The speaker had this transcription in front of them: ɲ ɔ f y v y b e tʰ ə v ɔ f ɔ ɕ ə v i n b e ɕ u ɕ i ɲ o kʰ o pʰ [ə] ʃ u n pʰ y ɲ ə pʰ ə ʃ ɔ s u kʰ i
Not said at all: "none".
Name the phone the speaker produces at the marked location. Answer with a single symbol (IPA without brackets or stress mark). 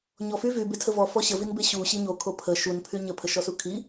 ə